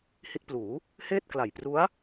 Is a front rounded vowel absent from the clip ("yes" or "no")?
yes